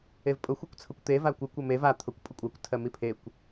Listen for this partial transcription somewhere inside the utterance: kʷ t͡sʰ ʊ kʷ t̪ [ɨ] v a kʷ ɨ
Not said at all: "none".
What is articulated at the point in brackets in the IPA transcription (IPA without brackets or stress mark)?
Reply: e